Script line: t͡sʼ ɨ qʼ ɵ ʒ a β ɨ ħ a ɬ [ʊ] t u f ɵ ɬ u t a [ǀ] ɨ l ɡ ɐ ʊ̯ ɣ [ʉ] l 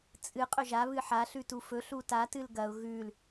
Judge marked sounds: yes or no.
no, no, yes

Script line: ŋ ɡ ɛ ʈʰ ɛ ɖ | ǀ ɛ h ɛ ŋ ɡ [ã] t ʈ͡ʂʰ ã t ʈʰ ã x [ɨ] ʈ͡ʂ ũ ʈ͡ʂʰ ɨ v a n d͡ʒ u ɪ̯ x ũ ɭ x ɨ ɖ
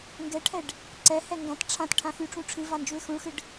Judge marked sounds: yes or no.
yes, no

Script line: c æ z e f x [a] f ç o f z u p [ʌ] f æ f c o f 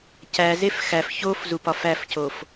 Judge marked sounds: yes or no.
no, no

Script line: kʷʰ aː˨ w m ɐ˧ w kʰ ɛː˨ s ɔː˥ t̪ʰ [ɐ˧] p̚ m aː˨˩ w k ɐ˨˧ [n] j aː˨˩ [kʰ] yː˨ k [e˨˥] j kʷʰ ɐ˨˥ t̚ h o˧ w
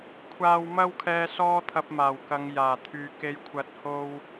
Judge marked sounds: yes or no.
yes, no, no, no

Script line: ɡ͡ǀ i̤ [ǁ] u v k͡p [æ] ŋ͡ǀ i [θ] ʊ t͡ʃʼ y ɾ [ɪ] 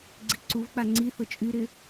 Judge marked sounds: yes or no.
no, no, yes, yes

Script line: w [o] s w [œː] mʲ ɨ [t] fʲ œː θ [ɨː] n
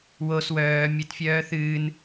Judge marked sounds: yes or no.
yes, yes, yes, yes

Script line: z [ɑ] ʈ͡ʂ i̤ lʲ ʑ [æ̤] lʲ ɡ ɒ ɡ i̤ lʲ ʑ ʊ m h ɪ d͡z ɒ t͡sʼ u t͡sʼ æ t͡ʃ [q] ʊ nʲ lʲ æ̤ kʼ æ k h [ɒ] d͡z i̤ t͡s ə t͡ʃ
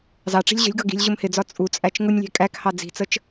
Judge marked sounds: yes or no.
yes, no, no, no

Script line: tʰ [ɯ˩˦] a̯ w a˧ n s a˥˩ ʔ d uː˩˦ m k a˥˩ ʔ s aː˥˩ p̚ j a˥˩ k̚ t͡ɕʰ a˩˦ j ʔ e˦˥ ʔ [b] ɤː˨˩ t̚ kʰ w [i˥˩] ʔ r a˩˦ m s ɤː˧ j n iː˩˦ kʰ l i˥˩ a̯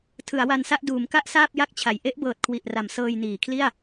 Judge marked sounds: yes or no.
yes, yes, no

